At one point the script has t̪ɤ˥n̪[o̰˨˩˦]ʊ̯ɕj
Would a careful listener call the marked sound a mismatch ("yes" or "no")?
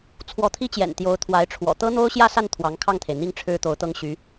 yes